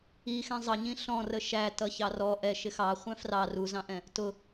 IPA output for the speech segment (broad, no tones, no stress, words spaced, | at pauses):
ixɛ̃ zˤʌɲĩ ɬɔ̃rə ʃætʌçɑ rɔ ʔɛʃɪ xɑχʷɛ̃ frɑ ruzɑ̃ʔɛ̃ | tʊ